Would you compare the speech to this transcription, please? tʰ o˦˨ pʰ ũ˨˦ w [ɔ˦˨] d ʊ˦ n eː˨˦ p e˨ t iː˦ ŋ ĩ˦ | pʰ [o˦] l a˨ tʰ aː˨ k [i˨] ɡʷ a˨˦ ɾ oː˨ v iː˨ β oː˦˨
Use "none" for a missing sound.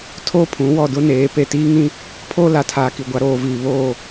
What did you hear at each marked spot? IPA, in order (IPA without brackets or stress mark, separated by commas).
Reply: ɔ˦˨, oː˦, i˨